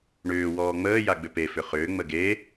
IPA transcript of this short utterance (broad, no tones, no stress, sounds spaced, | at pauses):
ɳ ʏː w ɔː ŋ͡m əː j a ɡ͡b ʏ p e f ʏ χ ʏː ŋ͡m ə ɡ e